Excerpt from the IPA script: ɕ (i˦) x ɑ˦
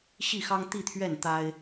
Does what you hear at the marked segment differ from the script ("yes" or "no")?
yes